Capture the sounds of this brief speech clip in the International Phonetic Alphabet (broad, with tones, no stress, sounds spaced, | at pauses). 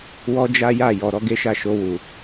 w ɔ˦ d͡ʒ a˦ j a˦˨ j ɔ˨ ɾ ɔ˧ ɡ e˦ ʃ a˦˨ ʃ o˧ w u˨